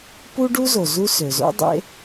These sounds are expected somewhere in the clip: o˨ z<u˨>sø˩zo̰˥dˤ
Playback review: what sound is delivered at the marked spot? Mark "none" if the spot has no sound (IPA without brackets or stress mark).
u˦